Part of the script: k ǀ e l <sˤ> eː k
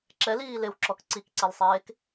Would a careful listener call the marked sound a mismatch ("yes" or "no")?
no